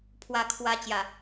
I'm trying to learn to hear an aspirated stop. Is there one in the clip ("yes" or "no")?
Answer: yes